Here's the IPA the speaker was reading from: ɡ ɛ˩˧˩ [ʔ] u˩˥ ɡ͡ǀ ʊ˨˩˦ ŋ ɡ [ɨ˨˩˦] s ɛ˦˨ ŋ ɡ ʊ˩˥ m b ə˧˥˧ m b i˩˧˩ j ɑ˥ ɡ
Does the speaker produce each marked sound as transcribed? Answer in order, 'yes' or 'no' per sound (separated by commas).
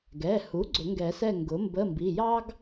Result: no, no